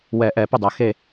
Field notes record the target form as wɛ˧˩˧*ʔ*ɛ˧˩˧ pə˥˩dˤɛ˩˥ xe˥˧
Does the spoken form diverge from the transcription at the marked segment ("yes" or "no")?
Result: no